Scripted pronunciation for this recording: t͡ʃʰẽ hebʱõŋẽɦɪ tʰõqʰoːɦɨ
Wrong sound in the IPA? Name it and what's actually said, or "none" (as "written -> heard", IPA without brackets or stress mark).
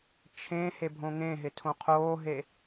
ɨ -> e